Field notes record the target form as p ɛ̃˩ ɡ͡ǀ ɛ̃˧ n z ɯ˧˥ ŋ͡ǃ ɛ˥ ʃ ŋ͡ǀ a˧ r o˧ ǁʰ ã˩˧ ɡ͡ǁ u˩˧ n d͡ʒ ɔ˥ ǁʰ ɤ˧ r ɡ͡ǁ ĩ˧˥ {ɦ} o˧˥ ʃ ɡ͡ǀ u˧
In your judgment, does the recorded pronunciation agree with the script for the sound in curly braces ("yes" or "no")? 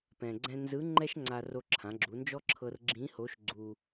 no